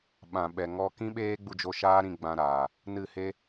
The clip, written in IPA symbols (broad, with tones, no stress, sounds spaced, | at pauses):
ɓ ã˨ ɓ ɛ˨ ŋ ɔ˧ k ĩ˦ ɓ eː˦ ɡ͡b u˧ d͡ʒ o˧ ʃ aː˦ ɾ ĩ˧ ɡ͡b ã˧ ɾ aː˨ | n ɨ˦˨ h e˦